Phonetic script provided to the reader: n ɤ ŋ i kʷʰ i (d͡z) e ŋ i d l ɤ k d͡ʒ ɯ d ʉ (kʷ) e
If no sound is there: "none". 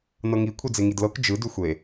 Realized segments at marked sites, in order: d͡z, xʷ

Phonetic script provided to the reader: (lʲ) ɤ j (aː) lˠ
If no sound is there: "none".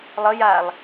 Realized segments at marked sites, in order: lˠ, aː

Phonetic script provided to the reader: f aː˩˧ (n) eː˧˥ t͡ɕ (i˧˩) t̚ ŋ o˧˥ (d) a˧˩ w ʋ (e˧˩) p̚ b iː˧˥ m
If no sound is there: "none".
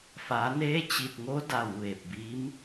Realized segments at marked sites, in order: n, i˧˩, d, e˧˩

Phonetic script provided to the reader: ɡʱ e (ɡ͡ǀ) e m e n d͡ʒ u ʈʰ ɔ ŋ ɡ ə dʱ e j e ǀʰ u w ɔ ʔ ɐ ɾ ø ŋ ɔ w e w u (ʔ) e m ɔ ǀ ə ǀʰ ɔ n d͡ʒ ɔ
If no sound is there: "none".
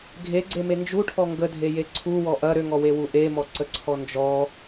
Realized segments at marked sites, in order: ɡ͡ǀ, ʔ

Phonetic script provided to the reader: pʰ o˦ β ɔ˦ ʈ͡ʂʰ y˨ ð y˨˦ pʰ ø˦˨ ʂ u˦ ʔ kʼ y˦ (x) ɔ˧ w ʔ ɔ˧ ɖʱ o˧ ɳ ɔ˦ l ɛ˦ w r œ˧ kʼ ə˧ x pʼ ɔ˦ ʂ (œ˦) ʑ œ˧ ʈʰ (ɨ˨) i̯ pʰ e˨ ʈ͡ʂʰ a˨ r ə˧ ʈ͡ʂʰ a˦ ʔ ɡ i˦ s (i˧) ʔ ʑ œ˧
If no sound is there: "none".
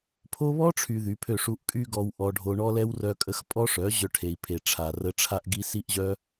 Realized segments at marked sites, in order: ɡ, œ˨˦, e˨, i˧

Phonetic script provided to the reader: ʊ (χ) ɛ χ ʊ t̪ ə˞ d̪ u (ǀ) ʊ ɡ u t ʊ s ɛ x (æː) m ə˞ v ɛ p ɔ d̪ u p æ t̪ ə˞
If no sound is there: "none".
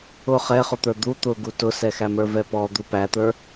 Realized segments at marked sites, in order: χ, t̪, æ

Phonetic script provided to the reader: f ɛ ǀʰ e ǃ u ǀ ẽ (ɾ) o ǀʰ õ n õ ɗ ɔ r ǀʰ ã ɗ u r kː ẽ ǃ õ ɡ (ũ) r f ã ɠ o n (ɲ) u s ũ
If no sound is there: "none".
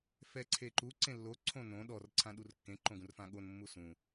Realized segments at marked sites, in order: lː, ũ, mː

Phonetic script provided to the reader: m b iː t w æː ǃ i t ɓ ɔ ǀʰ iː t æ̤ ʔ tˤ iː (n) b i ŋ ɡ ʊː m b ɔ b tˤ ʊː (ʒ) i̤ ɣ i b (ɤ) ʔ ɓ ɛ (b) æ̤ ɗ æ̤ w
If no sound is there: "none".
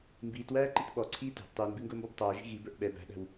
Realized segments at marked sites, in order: n, ʒ, ə˞, b

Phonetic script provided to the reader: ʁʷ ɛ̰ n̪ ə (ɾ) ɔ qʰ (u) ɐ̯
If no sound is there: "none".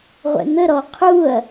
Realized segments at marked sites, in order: ɾ, u

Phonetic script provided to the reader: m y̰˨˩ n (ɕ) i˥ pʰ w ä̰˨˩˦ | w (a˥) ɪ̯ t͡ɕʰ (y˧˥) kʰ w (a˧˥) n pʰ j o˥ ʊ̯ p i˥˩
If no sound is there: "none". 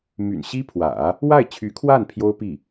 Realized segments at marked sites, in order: ɕ, a˥˩, y˧˥, a˥˩

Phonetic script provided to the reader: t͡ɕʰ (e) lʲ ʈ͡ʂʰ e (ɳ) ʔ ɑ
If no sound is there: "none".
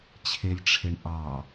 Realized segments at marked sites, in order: e, ɳ

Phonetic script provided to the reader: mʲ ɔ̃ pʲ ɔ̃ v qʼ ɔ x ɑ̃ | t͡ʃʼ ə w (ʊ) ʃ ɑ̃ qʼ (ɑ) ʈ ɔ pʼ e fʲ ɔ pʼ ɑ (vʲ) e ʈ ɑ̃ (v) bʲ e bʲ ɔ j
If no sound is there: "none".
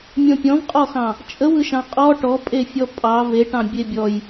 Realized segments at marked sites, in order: ɯ, ɔ, v, none

